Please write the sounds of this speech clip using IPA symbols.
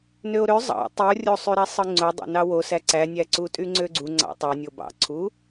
n ø o̯ ɾ ø zˤ ɑ̰ tˤ i o̯ rʲ o sˤ y ɾ æ sˤ ɯ ŋ͡ǀ o dˤ ɑ̰ n ɑ w o s æ ǀ æ nʲ æ ǀ u tʼ y ŋ͡ǀ ø ɡ͡ǀ u ŋ͡ǀ ɑ̰ tˤ o nʲ o b ɑ̰ ǀʰ u

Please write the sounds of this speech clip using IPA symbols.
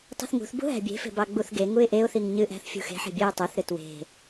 tˤ ṳ θ ŋ ṳ θ b ṳ ɦ æ̤ bʲ e̤ f e̤ b ɑ ɡ͡b u θ ɡ e ŋ u ɪ̯ ʔ e ʊ̯ θ i ŋ ɲ ɨ ʔ æ̤ θ fʲ ṳ x e̤ ħ e̤ bʲ æ ɪ̯ tˤ e θ ɾ ɨ t w e̤

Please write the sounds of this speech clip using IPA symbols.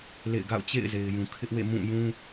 l ḛ˦˨ ɪ̯ ɡ a̰˦˨ ʊ̯ t͡ɕ ḛ˦˨ ɪ̯ z e˨ ɪ̯ j ũ˨ kʰ ɪ˦ ʔ w ḛ˦˨ m ũ˦˨ j ũ˦

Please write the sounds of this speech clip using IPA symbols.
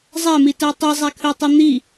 zˤ æ m i t æ tˤ i zˤ æ kʰ ø tˤ i n̪ i

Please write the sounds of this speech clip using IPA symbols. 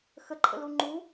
x ə ǃʰ ə̰ l u ŋ͡ǃ u

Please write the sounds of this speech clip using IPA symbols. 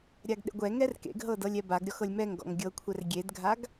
ɾʲ a ɡ ɗ ḛ ɡʷ ɛ ŋ ɛ r k ḛ ɡ ɦ ɤ d ɤ lʲ ɛ b a ɡ ɾʲ ɔ x ɤ lʲ m ɛ ŋ ɡ ɔ̰ ŋ ɡʲ ɤ kʷʰ ɛ r ɡʲ e d ɡʱ a ɡ

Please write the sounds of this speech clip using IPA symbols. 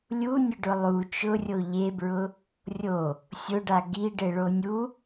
lʲ u nʲ ʊ ɖ ʊ lˠ u t͡ʃ ʊ rʲ o ʎ e b ɹ ʊ | rʲ o | sʲ ʊ ɖ a ɡ i ɖ e ɭ o nʲ u

